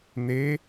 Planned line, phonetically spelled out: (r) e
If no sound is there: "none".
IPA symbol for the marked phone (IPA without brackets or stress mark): n̪